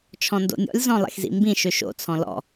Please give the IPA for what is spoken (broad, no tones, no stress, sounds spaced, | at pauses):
t͡ʃʰ ɔ̃ n d o̰ nʲ ɔ̰ lʲ z ɔ̃ lˠ ḛ x z ḭ m b ĩ ʃ ø ʃ o̰ t͡sʰ ɔ̃ l ɔ̰